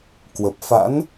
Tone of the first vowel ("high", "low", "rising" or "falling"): low